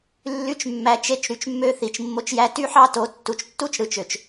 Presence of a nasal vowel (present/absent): absent